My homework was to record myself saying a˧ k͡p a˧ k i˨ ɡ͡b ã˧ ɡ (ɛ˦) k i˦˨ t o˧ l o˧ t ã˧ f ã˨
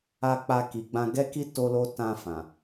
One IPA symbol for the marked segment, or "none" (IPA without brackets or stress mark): ɛ˦